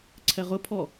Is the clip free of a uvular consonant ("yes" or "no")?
no